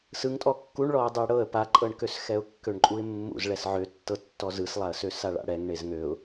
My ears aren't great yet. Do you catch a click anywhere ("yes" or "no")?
yes